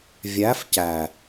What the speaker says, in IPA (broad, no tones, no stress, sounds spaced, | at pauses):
vʲ æ f c æ